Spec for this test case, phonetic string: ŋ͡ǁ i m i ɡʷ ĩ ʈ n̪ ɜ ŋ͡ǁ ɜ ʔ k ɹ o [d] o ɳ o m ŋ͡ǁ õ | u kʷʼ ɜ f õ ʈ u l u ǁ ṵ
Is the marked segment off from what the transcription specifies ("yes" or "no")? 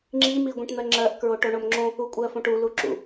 yes